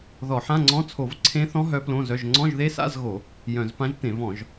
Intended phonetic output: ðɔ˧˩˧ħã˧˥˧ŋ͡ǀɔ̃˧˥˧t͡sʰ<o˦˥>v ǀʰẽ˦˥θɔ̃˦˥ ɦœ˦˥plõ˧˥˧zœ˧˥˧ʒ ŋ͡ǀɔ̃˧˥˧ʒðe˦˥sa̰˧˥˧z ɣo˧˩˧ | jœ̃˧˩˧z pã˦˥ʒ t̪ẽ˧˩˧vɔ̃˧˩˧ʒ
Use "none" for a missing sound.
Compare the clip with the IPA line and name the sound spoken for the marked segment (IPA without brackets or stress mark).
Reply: o˧˩˧